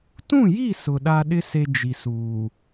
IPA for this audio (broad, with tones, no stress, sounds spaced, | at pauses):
t ũ˦˨ j i˦˨ s ʊ˨ ɗ a˦ ɗ ɪ˦ s e˦ d͡ʒ i˨ s uː˨